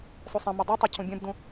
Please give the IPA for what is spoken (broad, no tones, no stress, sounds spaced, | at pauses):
sˤ u sˤ ɛ̃ m o dˤ ʉ tˤ ɛ cʰ ũ bʲ ɛ̃ b d ũ